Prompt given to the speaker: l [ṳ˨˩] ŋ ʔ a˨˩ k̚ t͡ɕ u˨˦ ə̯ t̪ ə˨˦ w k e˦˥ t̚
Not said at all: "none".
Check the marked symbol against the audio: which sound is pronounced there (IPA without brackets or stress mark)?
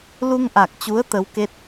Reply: u˧